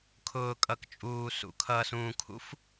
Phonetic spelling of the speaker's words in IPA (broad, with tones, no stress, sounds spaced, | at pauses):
kʰ ʊː˨ kʼ ʌ˨ k t͡ʃʼ uː˨ s ṵ˨ kʰ ʌː˨ s ũː˨ kʰ ṵ˦ f